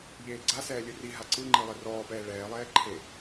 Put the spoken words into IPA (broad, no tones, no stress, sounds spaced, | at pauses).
ʎ eː ɡ͡ǀ a s ɛː lʲ ɯ r i ɦ a ǀ ɯ ŋ͡ǃ i lˠ ɛ r ɔː p ɛː ɭ ɛː lˠ ɛː ǃʰ e